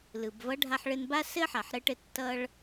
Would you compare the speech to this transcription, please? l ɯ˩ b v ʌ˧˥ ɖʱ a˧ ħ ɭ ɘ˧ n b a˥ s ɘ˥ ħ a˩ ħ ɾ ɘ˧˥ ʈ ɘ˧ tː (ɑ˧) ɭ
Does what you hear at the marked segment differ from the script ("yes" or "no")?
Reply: yes